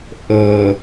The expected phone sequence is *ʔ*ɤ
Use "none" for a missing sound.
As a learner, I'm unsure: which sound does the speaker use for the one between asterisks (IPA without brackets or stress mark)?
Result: ʔ